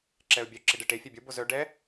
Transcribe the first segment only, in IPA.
ǁ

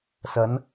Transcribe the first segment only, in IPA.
s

